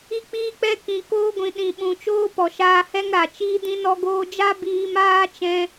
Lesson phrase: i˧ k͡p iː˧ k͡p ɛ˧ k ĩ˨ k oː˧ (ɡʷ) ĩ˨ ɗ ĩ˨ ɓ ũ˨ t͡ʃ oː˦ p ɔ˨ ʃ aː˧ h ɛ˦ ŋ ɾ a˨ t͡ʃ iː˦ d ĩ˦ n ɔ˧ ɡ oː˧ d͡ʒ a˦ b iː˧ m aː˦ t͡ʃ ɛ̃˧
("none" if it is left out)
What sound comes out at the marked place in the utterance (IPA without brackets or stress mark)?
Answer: ɡʷ